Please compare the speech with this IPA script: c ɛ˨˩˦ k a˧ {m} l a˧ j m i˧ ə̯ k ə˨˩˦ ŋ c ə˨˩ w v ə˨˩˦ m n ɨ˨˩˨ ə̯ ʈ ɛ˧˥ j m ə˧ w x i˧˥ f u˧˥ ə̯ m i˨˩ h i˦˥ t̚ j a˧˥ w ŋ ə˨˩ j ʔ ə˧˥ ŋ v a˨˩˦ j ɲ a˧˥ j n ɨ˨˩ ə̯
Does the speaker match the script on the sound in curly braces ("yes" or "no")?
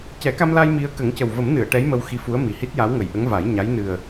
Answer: yes